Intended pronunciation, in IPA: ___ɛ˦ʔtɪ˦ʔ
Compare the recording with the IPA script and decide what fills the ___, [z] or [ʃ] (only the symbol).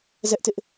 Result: z